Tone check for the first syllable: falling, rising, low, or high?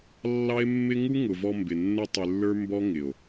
high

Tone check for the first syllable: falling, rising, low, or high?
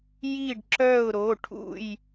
falling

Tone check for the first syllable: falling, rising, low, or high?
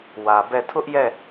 low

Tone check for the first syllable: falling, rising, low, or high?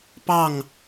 falling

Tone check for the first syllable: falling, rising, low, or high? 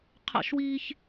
high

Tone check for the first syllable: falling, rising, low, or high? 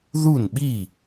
falling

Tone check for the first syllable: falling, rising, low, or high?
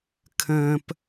low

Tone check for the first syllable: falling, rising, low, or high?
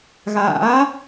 rising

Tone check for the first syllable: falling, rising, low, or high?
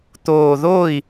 low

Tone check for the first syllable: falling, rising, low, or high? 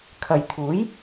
low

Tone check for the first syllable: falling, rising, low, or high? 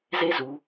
high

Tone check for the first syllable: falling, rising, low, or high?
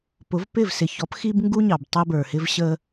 rising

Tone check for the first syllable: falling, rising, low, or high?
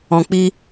low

